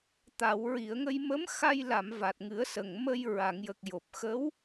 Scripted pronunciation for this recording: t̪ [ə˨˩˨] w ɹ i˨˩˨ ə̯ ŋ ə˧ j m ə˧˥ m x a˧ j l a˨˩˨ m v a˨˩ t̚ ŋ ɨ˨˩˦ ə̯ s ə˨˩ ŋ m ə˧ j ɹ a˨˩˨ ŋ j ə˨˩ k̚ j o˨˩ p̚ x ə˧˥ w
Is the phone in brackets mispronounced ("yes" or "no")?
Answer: yes